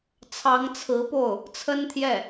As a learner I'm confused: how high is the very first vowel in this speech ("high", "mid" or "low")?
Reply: low